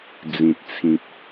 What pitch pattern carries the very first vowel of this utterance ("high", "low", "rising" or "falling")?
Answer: low